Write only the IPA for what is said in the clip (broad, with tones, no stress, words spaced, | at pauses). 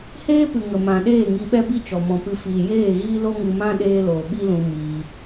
heː˦pɨ˨ ŋə˨mã˨ɗeː˦˨ ŋi˧ɓɛ˦bi˦ t͡ʃɔ˨mɔ̃˨pɨ˧ fiː˨jeː˦˨ɣiː˦ lo˦ŋɨ˧mã˦ ɗeː˦loː˨ ɓi˦lũ˧ miː˧